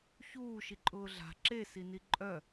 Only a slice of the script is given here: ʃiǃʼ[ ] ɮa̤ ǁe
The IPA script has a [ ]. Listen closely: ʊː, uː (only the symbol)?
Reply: ʊː